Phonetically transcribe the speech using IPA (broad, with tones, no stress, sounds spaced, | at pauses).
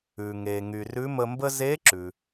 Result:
ʉ˩ ŋ e˩ ŋ y˩ r ʉ˧˥ m ə˧ m b ə˥ z e˧˥ ǁ ʉ˩